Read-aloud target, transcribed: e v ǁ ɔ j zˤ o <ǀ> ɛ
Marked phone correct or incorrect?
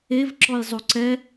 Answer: correct